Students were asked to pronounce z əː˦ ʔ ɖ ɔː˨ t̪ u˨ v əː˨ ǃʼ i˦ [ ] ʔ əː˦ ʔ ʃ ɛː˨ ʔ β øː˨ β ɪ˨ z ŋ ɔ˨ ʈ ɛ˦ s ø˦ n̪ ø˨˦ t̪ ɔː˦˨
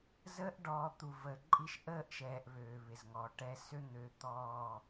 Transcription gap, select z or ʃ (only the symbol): ʃ